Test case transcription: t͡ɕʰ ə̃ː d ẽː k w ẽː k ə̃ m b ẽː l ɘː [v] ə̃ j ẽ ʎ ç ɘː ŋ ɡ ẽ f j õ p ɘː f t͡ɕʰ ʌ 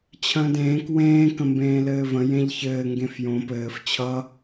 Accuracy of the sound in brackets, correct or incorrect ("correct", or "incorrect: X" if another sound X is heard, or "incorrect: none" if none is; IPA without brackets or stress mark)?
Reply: correct